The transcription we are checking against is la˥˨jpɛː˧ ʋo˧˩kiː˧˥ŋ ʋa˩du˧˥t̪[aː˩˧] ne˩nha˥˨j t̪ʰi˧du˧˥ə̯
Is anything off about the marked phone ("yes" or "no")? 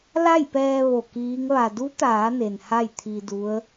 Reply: no